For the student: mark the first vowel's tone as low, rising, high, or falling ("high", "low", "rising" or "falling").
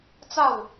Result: falling